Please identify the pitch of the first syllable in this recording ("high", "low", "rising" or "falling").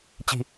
low